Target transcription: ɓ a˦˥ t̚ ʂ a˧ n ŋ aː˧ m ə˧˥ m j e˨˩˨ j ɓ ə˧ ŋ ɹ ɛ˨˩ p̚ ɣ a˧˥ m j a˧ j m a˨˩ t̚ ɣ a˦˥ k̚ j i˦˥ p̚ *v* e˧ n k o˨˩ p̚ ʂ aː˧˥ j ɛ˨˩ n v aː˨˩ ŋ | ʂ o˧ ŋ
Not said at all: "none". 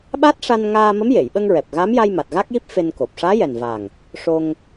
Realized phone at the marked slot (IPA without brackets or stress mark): f